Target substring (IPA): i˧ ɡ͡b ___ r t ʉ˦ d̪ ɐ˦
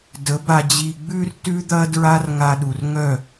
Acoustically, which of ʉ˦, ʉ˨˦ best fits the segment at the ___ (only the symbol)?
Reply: ʉ˦